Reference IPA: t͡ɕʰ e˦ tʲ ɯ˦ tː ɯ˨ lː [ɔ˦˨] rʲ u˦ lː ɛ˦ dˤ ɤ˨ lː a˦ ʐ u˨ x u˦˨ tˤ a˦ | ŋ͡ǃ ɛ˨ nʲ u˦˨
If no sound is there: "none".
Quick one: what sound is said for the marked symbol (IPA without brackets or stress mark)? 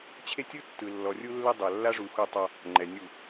ɔ˨